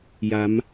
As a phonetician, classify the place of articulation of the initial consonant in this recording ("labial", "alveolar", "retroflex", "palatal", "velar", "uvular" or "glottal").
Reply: palatal